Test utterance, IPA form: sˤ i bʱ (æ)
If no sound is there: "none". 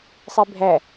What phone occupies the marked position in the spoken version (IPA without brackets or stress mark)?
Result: æ